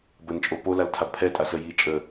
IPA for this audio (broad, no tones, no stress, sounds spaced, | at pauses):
b ə n t͡ʃʼ o p o l a l tʰ a b pʰ ɛ tʼ a s ə j i t͡ʃʼ ə